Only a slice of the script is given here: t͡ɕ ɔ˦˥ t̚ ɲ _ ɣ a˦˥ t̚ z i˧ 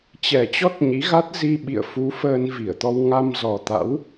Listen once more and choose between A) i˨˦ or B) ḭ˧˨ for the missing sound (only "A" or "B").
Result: A